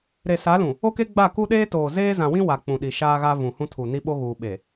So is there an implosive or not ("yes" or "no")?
yes